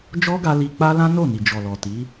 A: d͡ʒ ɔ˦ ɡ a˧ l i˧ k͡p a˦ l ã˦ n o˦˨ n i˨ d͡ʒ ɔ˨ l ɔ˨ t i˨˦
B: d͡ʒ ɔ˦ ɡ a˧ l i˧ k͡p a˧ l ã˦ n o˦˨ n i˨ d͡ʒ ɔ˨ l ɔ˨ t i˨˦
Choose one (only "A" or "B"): A